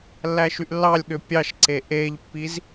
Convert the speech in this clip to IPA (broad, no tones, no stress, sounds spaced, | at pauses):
lː æ ʃ y ʔ lː ɑ lʲ ɠ ø pʲ ɑ ʃ ǀ e ʔ e ʎ pː i z